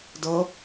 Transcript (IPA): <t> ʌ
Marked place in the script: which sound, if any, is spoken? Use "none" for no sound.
d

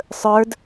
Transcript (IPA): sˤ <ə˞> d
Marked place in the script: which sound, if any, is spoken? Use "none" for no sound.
ə˞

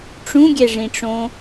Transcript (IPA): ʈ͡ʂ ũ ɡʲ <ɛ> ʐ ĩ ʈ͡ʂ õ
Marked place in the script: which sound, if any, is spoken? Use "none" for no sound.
ɛ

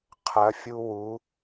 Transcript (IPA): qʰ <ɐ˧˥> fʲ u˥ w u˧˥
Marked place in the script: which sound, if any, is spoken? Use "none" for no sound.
ɐ˧˥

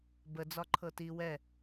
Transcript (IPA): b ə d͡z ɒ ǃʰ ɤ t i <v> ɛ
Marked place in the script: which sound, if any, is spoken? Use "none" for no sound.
w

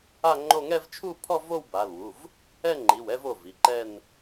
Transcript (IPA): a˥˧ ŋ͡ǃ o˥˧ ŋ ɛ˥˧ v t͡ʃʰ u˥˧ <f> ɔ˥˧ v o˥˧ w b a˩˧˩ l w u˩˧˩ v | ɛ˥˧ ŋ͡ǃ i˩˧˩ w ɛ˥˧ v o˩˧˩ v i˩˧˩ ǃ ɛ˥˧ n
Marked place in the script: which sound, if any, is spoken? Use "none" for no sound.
pʰ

